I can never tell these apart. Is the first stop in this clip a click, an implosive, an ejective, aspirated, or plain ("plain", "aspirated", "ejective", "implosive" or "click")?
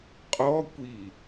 ejective